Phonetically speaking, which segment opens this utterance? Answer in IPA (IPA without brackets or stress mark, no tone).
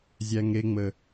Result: zʲ